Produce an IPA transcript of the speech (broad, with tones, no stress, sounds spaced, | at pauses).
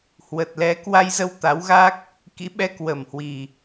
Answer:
h w ə˨˩ t̚ l ɛ˨˦ k w a˧ j z ə˧ w t̪ a˨˦ w ɣ a˦˥ k̚ | k ḭ˧˥ ɓ ɛ˧ k w ə˨˩ m h w i˨˩